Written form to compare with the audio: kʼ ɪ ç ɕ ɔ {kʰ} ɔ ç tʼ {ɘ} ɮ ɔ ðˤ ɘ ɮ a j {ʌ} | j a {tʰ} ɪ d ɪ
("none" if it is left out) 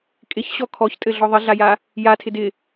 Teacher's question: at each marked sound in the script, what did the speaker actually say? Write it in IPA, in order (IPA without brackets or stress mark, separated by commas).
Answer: kʰ, ɘ, a, tʰ